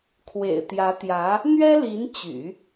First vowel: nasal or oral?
oral